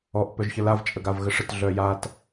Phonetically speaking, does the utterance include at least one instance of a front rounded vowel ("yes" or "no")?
yes